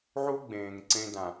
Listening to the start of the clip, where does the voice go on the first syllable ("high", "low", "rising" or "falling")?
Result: high